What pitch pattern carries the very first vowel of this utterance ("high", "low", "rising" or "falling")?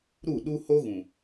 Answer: falling